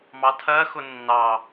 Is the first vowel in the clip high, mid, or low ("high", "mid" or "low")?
low